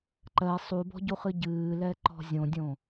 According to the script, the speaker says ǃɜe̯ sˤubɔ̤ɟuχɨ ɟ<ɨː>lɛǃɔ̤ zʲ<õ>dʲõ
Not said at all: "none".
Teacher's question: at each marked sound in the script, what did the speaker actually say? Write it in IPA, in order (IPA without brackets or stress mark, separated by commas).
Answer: ɨː, õ